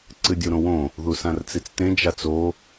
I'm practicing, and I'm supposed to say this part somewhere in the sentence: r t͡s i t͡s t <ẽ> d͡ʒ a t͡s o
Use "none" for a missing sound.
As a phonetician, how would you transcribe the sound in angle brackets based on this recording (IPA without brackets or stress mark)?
ẽ